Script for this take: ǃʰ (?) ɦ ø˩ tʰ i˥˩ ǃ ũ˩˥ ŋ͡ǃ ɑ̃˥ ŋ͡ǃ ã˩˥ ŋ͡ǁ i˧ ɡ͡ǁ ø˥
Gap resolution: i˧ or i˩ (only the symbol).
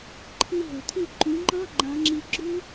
i˧